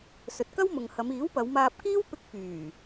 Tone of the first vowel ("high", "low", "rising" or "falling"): low